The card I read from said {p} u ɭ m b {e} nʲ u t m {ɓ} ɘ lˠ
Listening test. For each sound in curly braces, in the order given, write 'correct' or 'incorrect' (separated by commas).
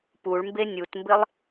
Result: correct, correct, incorrect